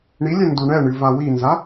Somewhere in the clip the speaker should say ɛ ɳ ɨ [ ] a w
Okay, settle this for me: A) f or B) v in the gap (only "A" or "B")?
B